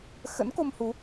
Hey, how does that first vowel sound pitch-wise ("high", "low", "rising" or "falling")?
rising